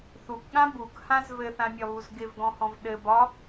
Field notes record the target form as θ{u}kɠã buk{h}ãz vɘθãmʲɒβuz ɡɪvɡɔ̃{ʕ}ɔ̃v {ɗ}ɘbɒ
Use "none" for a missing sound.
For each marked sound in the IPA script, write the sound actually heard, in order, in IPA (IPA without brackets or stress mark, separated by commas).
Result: u, h, h, ɗ